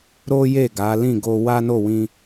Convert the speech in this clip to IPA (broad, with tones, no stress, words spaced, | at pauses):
ɾo˦ je˦˨ɡa˨˦lĩ˦˨ ɡo˧ wa˦no˦˨wĩ˧